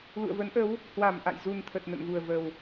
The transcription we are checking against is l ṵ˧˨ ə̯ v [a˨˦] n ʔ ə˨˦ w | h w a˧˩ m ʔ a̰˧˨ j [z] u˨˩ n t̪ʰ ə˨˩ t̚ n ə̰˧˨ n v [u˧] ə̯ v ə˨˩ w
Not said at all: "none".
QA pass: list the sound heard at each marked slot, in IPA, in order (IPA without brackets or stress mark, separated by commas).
ə˨˦, z, u˨˩